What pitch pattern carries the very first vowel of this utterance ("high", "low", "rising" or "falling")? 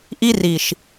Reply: high